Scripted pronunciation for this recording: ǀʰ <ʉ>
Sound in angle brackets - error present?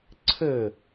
yes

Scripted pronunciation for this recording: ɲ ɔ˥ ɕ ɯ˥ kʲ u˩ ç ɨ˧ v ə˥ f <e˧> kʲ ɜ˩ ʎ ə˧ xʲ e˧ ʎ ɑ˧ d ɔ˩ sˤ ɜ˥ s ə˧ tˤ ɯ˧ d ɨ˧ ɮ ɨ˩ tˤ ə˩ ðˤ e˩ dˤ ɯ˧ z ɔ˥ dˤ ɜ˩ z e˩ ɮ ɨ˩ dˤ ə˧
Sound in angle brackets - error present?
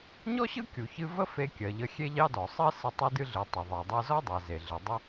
no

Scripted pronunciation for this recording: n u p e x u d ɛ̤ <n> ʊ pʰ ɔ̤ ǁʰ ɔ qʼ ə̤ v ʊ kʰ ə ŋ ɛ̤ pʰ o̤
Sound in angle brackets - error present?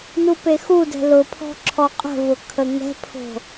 yes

